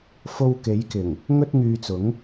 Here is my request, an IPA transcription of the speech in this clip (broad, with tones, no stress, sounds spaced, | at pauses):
f o˧ w k e˨˧ j k ɪ˨˩ ŋ | ŋ ɵ˥ t̚ ŋ yː˧ t͡s ʊ˨˥ ŋ